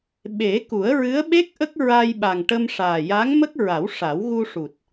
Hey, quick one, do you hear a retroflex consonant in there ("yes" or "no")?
yes